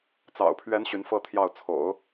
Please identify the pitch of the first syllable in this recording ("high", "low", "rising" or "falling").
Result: low